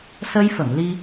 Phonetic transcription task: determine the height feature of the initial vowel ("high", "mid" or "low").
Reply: mid